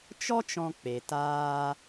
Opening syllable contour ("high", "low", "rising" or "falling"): high